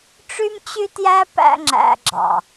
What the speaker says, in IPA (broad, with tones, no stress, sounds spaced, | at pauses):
ʈ͡ʂ y˦ m t͡ɕ y˦ t j æ˦ p æ̰˧ ŋ͡ǁ æ̰˧ ɡ͡ǁ ɑ̰˨